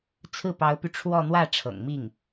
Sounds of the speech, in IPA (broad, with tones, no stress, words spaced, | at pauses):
t͡sʰɹ̩˥˩pɑ˧˥ʊ̯py˧ ʈ͡ʂʰwɔ˥˧ n̪wä˥˩ ʈ͡ʂʰɤ̰˨˩ŋmi˥˩ŋ